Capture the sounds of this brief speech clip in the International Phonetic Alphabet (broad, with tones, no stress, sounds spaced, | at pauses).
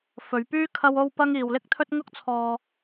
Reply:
f ɵ˨˧ ɥ p yː˥ kʰ ɐ˥ w o˥ w p ɐ˥ ŋ iː˨ w l ɪ˥ k̚ t̪ʰ ɵ˥ t̚ ŋ ʊ˥ k̚ t͡sʰ ɔː˧